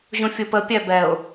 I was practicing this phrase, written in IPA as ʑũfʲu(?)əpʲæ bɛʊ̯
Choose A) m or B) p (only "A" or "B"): B